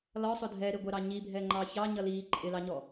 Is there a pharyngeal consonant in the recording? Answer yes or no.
no